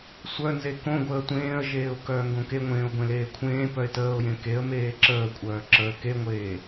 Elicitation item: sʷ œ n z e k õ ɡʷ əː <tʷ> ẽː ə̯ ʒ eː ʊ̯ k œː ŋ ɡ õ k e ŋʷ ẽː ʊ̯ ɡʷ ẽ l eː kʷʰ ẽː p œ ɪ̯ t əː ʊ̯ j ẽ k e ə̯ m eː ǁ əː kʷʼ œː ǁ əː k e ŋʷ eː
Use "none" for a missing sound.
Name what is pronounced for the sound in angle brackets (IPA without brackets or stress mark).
tʷ